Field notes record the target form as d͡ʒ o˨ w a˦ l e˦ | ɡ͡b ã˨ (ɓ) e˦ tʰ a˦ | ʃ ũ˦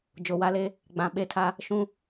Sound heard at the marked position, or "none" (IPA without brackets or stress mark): ɓ